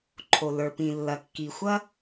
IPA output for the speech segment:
ǃʰ o˩ l ə˞˩ p ĩ˩ lː ɐ˩ kː i˩ xʷ ɐ˥

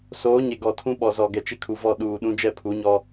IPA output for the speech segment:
s oː˨˦ ɲ e˨ ɡ ɔ˨ tʰ ũ˦ ɓ ɔ˨ z ɔ˨ ɡ ɛ˨ t͡ʃ ɪ˦ kʰ u˨ v ɔ˦˨ ɗ uː˨ ɗ ũ˦ d͡ʒ ɛ˦˨ pʰ u˨˦ ɲ ɔ˦

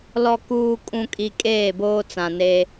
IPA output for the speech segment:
l ɔ˨ k uː˨ kʼ ũ˨ kʼ i˨ kʼ eː˦˨ b oː˦ t͡s ã˨ n eː˦

